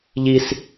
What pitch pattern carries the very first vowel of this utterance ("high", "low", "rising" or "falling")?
high